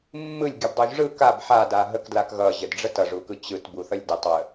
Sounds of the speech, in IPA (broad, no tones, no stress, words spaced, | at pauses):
mːɯlʲɡʲɯbdˤuʒ ʐɯ kab ħada ɦəkdlak ɣʌʑədɖ͡ʐə tʌʐukɯ t͡ɕɯtbuθʌlʲ dətˤwə